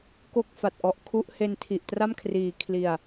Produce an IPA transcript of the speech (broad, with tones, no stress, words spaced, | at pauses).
ko˥˩k̚fa˨˩t̚ʔɔ˦˥ʔ kʰu˦˥ʔhe˧n tʰi˨˩ʔ tra˥˩mkʰriː˩˦ kʰli˨˩a̯